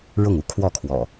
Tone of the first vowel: falling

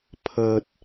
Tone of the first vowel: high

